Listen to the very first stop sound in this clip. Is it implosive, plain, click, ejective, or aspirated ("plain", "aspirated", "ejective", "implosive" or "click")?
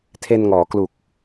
aspirated